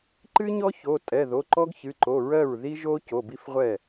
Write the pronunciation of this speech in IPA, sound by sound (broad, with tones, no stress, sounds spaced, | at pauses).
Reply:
ǃ ɨ˥ ɲ ɔ˥ ç o˩˧˩ tʼ ɛ˩˧˩ ð o˩˧˩ ǃ ɔ˥ ɡ ç ɨ˩˧˩ ǃ o˩˧˩ ɹ ɜ˥˩ ɹ ð i˥ ʒ o˥ c o˩˧˩ b i˥ f ʁʷ ɛ˥˩